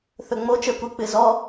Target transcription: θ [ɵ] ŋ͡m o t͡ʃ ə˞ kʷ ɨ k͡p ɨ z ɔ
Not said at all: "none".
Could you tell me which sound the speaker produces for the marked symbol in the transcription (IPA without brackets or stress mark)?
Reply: ɵ